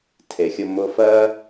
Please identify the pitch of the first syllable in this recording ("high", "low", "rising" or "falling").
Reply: low